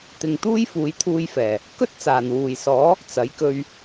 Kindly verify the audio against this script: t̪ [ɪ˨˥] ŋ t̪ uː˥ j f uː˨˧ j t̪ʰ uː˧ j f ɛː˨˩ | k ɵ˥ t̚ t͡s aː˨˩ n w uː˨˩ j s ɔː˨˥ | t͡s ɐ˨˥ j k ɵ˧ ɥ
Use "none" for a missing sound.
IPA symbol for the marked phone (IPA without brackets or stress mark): ɪ˨